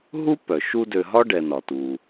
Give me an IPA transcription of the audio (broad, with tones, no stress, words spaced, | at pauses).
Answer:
ɦu˥ pœ˩ ʃu˦dø˨ɦɒ˥ ɖɛ˨nɒ˩tu˩